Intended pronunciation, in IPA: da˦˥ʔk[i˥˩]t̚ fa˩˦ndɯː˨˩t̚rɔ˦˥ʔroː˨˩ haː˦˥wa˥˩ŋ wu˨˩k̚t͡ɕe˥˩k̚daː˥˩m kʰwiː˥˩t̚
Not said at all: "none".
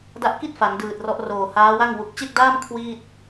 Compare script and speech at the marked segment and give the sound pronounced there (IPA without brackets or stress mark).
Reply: i˥˩